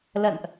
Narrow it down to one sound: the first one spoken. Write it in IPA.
l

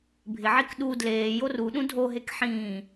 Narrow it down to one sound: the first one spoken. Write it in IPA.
bʱ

